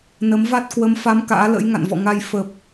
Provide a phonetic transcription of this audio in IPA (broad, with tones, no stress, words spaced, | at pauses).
nə˨˦mva˦˥t̚ kwə˨˦mfa˨˦m ka̰ː˧˥lə̰˧˥j ŋa̰˧˨nvɔ̰˧˨ŋa˧j fə˨˩p̚